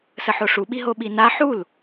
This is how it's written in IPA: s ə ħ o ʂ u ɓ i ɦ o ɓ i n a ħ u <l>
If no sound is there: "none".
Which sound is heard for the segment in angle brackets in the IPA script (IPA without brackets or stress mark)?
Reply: l